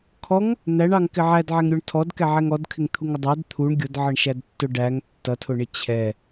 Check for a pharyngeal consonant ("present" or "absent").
present